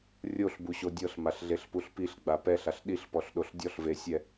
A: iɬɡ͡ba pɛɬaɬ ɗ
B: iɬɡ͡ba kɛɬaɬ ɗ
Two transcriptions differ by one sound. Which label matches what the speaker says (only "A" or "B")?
A